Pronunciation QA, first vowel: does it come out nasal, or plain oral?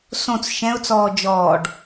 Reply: nasal